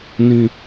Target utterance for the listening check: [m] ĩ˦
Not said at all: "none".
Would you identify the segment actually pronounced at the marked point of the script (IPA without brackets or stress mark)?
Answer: n